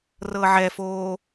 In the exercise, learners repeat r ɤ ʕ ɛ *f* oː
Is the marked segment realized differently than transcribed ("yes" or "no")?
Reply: no